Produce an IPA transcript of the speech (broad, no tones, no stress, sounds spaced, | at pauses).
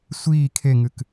sʷ iː kʰ e ŋ ɨ k